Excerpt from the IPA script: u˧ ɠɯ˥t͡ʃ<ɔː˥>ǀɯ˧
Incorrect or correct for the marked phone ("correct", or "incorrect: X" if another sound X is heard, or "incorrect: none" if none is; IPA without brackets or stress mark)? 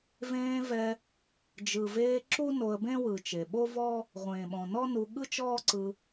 correct